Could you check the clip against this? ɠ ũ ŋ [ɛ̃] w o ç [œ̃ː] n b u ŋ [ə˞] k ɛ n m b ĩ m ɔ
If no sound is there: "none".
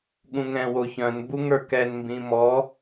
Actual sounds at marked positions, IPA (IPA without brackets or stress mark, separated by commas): ɛ̃, œ̃, ə˞